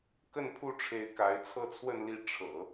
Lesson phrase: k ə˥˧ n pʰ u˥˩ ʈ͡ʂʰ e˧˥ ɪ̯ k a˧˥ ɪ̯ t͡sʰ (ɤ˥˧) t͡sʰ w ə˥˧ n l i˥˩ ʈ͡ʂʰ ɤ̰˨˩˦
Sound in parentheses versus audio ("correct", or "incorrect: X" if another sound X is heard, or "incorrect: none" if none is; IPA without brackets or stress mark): correct